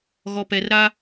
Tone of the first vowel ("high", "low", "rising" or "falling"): low